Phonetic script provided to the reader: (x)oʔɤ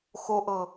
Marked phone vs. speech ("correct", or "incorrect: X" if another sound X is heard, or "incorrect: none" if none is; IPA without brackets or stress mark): correct